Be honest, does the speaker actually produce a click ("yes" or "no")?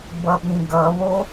no